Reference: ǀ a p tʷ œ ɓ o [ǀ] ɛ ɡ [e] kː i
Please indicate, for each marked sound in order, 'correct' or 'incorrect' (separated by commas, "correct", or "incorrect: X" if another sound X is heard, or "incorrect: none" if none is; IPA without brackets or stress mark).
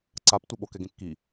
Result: incorrect: k, incorrect: ẽ